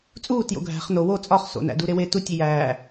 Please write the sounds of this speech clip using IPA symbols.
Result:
t͡sʼ uː t j o̰ ɡʱ æ̤ χ n o w o t͡sʼ ɒ χ s o̰ n æ̰ d u ɾ e w e t u tʲ i j æː

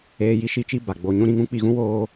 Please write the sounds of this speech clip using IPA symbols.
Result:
eː˧ j i˦ ʃ i˧ t͡ʃ i˧ b a˨ ɡ͡b oː˧ ɲ ũ˦ ɾ ĩ˧ ŋ ũ˦ k͡p i˧ ɣ ũ˦ w oː˦

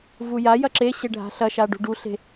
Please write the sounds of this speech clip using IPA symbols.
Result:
v u j a j ɐ ǁ e ɕ e ɖʱ a̤ ɬ ɐ ʃ a ɖ ṳ ɖ u ɬ e̤

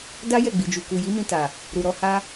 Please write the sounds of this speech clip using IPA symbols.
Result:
d a˦ j ɛ˦˨ ɡ͡b i˨ d͡ʒ u˨ k u˨ j i˨˦ m ĩ˧ t a˨ | ɾ u˨ ɾ ɔ˨˦ h a˦

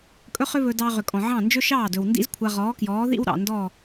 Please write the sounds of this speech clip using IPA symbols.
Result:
kʼ ɵ˥ χ ʏ˥ β ɵ˧ d ɑ˧ ʁ ʏ˩ kʼ ɔ̃˩ ʕ ɑ̃˥˩ n d͡ʒ ɵ˥ ʃ ɑː˥˩ d ɵ˩ w n d ḭ˥ z kʷʰ a˧ ʁ ɔː˩˥ k j ɔː˩˥ ð ḭ˥ w ɾ ɑ̰˩ n d ɔ˥˩

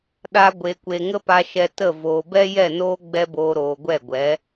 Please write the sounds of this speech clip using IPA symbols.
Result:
ɗ a˧ ɡʷ e˨ kʷ e˨ ŋ ə˦ p a˧ ʃ ɛ˧ t ə˦˨ v oː˨ b ɛ˦ j ɛ˦˨ n oː˦ ɡ͡b ɛ˦ b oː˧ ɾ oː˨ ɡʷ ɛ˦˨ ɡʷ ɛ˨˦

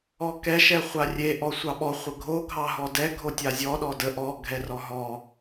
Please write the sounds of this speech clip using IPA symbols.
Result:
ɔ k ɛ ʃ ɛ χʷ a rʲ e ʔ ɔ sʷ ɑ ɓ ɔ χʷ ə ɡʱ o ɡʱ ɑ ɦ ɔ d ɛ ɡʱ o tʲ a zʲ ɔ ɗ ɔ d ə ʔ ɔ ɡʱ ɛ r ɔ ɦ ɔ

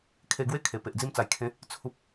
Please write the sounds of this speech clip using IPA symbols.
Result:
kʰ e˧ ɡ w e˦ kʰ e˨˩ p e˨ ʔ d͡z i˧ m t͡s a˨˩ j kʰ ẽ˨˦ | t͡sʰ u˨ p̚

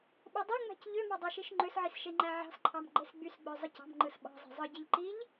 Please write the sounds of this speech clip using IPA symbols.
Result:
ɓ o dˤ o ŋ͡m æ̤ c ʎ ø m ɑ dˤ ɑ ʃ i ʃ ŋ͡ǃ ø s ʕ i s ʃ e ŋ͡ǃ æ ʕ ɑ̤ s ǃʰ ɑ m ɡ͡ǃ e s ɡ͡b y s ɡ͡b ø zˤ ɯ c ɑ̤ m ŋ͡ǃ ɯ s ɓ ɑ̤ zˤ e̤ zˤ ɯ ɟ e ʎ ǃ i ʎ

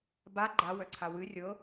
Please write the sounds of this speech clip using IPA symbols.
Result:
b a ɡ͡ǃ a w œ ǀʰ a w ɨ rʲ ɤ

